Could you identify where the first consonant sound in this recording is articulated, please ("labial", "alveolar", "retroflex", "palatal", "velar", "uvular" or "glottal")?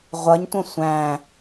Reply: uvular